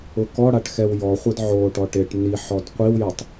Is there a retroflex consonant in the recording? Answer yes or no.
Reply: yes